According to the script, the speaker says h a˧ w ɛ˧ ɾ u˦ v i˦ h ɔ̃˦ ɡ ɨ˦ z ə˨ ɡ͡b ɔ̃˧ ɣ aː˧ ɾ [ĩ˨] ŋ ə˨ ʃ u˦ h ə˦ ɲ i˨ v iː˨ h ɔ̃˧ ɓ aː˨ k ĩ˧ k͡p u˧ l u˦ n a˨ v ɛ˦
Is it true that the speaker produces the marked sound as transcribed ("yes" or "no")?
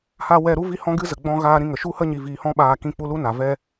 no